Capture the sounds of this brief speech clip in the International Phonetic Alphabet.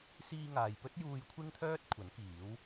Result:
s iː˧ ŋ aː˨ j p ɵ˥ t̚ j uː˧ j kʷʰ ɪ˥ ŋ t̪ʰ œː˥ t̚ kʷʰ ɐ˨˥ n k iː˨˥ w

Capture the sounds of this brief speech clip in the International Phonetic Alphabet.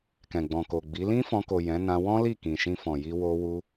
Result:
k ɛ̃˨ ɡ͡b ɔ̃˨ k o˨ ɡ͡b i˨˦ l ĩ˦ f ɔ̃˧ k o˨ j ɛ̃˨˦ n ã˧ w ɔ̃˦ l i˦˨ k ĩ˨ ʃ ĩ˧ f ɔ̃˨ j i˧ w o˧ w u˧

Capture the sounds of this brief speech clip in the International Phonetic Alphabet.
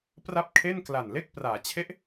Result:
p r a˦˥ p̚ kʰ e˥˩ n k l a˨˩ n l e˥˩ k̚ p r aː˩˦ t͡ɕʰ e˥˩ ʔ

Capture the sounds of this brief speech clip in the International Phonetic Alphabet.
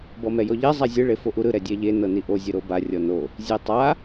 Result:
b ɔ m ɛ j ɔ ʎ ɛ zˤ a zʲ ɯ ɭ e f o ʔ u ɾ ɯ ɾ ɛ dʲ ɛ ʎ e n ɤ n i ʔ o zʲ ɯ ɾ o b a rʲ ɔ n o | zʲ e tˤ a

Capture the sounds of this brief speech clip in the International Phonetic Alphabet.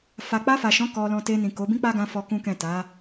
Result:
f a˨ k͡p a˧ f a˨ ʃ ɔ̃˨˦ k ɔ˧ l ɔ̃˧ t e˧ n ĩ˨ k o˨˦ b ĩ˦ k͡p a˦ ɡ ã˧ f ɔ˧ k ũ˦ k ɛ̃˦˨ t a˨˦

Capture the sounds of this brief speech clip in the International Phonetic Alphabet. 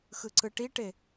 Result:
x ɯ ǀ ɯ ʈ i ʈ e

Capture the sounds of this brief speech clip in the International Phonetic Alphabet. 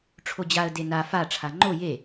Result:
ʈ͡ʂʰ o d͡ʑ a ə̯ d e n a f a ʈ͡ʂʰ a ŋ͡ǃ o j e

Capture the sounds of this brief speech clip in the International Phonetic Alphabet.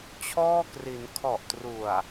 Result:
t͡ɕʰ ɔː˥˩ k r i˩˦ n kʰ ɔ˨˩ ʔ t r u˨˩ a̯

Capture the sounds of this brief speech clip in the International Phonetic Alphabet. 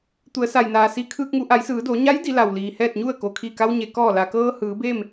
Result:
t̪ u˩˧ ə̯ s a˩ j n aː˩ s i˧˥ kʰ ɯː˧ k̚ ŋ u˩˧ ʔ a˩˧ j s ɯː˩˧ d o˩˧ ɲ a˧˥ j d i˩˧ l a˩ w l iː˩ h ɛː˥˨ t̚ ɲ u˥˨ ə̯ k o˩ kʰ i˧˩ k a˧ w ɲ e˩ k ɔː˧˩ l a˩ k ɤː˧ h ɯː˩˧ b e˥˨ m

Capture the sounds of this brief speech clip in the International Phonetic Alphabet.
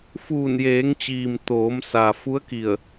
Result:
f uː˧˩ n j eː˩˧ ŋ t͡ɕ iː˩ m t̪ oː˩˧ m s a˩ f u˧˥ ə̯ k i˧˩ ə̯

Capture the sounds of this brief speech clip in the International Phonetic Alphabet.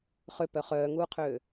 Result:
χ ø p œ χ œː ŋ uː qʰ øː

